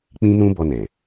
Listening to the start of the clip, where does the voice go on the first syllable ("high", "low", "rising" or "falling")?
high